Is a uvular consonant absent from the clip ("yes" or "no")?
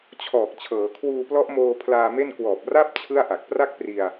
yes